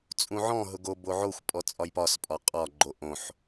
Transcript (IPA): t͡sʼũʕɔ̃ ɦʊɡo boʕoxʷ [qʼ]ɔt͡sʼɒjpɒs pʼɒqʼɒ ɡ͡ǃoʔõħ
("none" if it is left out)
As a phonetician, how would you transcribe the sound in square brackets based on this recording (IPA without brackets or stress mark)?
pʼ